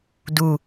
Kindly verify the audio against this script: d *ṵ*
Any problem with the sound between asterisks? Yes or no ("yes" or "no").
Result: yes